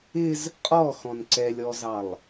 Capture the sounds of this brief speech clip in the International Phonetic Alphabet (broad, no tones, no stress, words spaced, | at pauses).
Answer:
ɪz | qʼɔxɔ̃n ǀɛlʲɔzɑlˠ